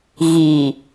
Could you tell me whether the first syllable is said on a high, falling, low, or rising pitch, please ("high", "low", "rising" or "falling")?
low